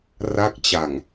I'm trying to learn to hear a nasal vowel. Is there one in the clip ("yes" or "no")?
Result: no